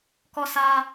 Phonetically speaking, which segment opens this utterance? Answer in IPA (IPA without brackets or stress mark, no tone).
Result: k